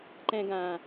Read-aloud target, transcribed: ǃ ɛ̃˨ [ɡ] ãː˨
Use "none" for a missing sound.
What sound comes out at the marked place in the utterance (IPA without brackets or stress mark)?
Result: ɡ